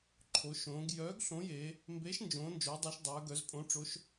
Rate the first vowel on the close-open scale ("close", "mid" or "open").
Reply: mid